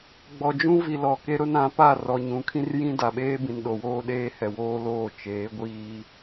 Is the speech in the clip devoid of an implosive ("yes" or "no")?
no